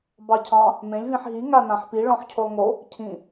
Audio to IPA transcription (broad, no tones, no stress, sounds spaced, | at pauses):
b ɑ cʰ ɑ̃ | m ẽ lʲ v ĩ ħ ɦ i ŋ a n ã ħ p i ɭ ɔ̃ ħ cʰ o lˠ ŋ o | cʰ ĩ